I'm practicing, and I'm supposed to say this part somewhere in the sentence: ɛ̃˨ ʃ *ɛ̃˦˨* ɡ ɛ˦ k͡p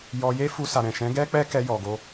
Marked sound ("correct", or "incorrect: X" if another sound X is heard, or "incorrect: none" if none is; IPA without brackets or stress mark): incorrect: ɛ̃˨˦